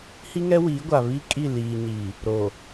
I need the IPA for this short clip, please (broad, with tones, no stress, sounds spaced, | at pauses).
h i˦ ŋ ɛ˦ w iː˨˦ ɡʷ a˨ β i˦ kʼ i˦˨ l iː˨ ɲ i˨ | ɾ o˨